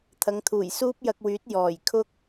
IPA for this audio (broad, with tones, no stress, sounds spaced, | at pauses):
t̪ʰ ɐ˨˧ ŋ t̪ʰ uː˨˩ j s uː˥ p̚ j ɐ˧ k̚ w yː˨˥ t̚ j ɔː˨˩ j kʰ ʊ˥ k̚